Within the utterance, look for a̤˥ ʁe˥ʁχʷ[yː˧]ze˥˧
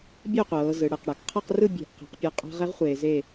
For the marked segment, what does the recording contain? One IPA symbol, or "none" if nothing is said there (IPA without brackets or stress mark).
eː˧